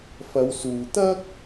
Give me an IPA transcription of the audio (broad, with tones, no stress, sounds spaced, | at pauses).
f ɐ˨˧ w s uː˨ t̪ ɐ˥ k̚